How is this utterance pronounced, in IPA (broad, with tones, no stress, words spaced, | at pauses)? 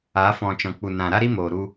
a˨˦fɔ̃˨t͡ʃɔ̃˨k͡pu˨ nã˨ ɾa˦ɾi˦moː˨ ɾu˧